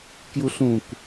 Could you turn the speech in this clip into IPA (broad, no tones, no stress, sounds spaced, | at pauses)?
k j u ɬ ũ k